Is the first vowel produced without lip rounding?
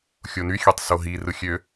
no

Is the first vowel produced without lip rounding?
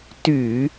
no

